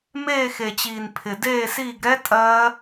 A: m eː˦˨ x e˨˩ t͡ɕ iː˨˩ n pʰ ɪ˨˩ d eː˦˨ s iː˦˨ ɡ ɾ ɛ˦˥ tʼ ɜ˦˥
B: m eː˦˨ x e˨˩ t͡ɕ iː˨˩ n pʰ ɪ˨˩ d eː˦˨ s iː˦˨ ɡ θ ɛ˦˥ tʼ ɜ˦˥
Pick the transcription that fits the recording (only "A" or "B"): A